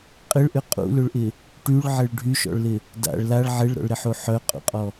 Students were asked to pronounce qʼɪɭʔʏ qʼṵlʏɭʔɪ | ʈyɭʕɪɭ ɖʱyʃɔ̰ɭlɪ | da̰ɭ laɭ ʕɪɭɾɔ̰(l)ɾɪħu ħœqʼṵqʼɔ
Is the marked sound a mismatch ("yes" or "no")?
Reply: yes